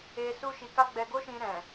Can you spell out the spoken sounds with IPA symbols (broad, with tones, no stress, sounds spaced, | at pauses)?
e˧ s u˦ ʃ i˧ k a˦ ɡ͡b ɛ˧ ɡ o˦ ʃ ĩ˧ ɾ ɛ̃˨